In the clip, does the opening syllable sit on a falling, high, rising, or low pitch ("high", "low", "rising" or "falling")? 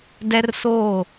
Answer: high